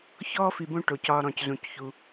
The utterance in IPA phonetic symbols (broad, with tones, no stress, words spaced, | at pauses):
çɔː˥fi˨bõ˦ ʈo˩cɒ˨ ɾɔ̃˩czũ˩cçu˩